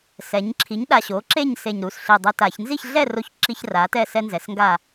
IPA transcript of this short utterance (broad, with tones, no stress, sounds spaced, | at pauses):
s ɛ˩˧ ɲ ǁʰ i˩˥ ɲ ɗ a˨˩ ɕ o˩˥ ǁ e˥˨ ɲ s e˨˩ ɲ ɾ u˨˩ s ɬ i˨˩ dˤ e˦ t a˧˩˧ ç n z i˥˨ ç ɮ ɛ˥˨ r o˥˨ ç ǁ i˦ ç r a˩˥ t ɛ˥˨ s ɛ˦ n z ɛ˩˧ s ŋ ɡ a˥˨